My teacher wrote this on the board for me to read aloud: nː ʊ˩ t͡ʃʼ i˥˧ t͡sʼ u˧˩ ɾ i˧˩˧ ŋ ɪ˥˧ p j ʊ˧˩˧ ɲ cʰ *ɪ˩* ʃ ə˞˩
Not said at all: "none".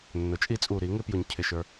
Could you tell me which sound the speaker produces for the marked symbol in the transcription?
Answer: ɪ˩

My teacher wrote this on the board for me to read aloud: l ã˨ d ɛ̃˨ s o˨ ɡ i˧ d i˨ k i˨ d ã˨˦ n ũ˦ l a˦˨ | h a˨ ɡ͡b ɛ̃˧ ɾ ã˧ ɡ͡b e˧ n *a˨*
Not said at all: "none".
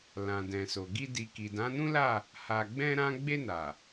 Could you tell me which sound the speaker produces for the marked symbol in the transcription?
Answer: a˨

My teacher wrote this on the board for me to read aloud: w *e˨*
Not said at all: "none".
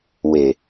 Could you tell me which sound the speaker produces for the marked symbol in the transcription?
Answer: e˨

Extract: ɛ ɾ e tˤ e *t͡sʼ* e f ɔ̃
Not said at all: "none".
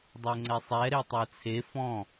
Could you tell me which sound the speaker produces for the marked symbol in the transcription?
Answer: t͡sʰ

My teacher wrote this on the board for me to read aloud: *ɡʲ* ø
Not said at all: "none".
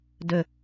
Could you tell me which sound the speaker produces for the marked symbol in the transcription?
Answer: d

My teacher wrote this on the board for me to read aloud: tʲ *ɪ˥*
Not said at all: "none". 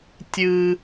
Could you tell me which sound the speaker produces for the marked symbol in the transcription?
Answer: ɨ˥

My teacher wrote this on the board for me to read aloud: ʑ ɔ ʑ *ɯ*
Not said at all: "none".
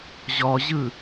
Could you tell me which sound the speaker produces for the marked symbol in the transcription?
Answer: ɯ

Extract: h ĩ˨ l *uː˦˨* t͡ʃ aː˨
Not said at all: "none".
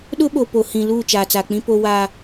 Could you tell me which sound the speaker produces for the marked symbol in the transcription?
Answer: uː˦˨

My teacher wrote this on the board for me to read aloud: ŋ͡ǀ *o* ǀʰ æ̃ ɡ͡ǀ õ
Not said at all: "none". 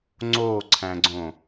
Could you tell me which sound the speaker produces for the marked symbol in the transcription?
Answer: o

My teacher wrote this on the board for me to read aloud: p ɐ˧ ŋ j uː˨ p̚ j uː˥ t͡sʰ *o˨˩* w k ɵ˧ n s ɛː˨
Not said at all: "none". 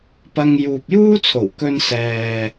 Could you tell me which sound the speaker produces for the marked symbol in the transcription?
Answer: o˨˩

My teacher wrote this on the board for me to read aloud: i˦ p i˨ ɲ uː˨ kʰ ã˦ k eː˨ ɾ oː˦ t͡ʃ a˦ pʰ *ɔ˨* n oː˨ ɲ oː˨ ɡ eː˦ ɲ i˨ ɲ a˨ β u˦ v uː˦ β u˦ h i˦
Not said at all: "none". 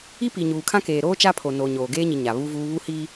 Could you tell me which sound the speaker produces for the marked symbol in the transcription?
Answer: o˨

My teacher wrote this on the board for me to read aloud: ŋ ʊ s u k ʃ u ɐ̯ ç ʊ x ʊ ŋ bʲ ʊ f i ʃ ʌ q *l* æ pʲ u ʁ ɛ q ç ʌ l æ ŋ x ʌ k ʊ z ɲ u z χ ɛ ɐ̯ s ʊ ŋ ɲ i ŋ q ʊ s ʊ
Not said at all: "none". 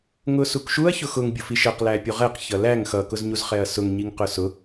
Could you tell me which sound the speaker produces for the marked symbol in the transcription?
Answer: l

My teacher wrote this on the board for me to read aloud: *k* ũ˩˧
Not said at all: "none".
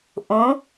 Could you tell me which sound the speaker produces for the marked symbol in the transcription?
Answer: ʔ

